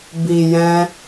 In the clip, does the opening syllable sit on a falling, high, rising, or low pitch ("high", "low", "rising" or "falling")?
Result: low